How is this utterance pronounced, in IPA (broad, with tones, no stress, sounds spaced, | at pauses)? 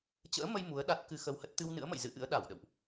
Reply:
t͡ɕ ə̰ː˧˥ m ə˧ j m u˨˦ ə̯ ɗ a˦˥ t̚ k ɨ˧ x ə˧ w h ə˦˥ t̚ t̪ ɨ˧ w n ɨ̰˧˥ ə̯ m ə̰˧˨ j z ɨ̰˧˥ ʔ ɨ̰˧˥ ə̯ ɗ a˧˩ w ɗ ə̰˧˨ w ʔ